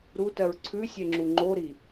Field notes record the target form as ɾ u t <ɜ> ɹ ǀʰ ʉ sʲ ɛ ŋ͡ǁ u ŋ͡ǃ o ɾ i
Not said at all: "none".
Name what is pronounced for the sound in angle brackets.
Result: ɜ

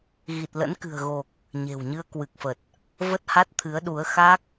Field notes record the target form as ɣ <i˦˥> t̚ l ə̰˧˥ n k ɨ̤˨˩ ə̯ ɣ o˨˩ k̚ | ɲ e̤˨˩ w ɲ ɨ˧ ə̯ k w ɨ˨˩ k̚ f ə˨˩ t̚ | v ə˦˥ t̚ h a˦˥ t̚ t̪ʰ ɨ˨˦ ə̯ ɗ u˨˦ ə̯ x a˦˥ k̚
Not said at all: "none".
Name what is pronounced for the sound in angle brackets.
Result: i˨˩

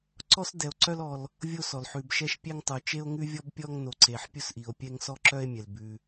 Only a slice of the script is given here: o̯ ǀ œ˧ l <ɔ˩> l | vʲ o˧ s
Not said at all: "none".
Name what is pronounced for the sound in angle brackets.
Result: ɔ˩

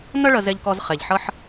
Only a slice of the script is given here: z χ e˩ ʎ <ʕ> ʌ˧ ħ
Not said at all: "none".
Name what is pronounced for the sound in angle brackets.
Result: ħ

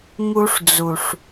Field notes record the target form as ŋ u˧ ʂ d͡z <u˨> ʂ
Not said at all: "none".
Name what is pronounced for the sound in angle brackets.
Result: u˨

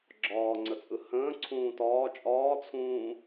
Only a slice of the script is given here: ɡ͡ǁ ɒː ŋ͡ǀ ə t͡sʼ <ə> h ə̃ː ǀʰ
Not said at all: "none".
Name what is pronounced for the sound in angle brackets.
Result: ɯ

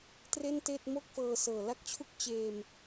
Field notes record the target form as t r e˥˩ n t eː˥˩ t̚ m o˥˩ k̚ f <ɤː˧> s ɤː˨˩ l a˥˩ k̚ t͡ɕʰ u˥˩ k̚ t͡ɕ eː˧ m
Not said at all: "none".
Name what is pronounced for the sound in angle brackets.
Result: ɤː˧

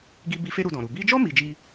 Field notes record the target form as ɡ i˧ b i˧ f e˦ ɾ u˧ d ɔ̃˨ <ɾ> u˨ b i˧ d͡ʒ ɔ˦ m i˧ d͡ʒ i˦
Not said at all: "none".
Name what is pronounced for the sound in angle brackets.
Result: ɾ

